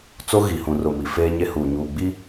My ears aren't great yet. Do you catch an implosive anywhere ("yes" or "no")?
no